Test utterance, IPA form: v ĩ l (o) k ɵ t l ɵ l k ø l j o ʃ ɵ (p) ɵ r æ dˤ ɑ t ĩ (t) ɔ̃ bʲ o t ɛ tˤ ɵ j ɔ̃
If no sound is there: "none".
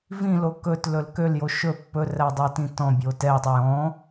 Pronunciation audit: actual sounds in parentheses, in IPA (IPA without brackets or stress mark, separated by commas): o, pː, t